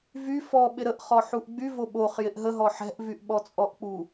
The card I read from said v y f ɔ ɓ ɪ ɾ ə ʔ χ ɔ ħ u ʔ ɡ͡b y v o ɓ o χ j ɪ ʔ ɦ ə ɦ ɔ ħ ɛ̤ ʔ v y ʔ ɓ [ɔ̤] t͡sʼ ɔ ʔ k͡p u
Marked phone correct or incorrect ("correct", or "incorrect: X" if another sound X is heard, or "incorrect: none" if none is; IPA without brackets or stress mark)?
incorrect: ɔ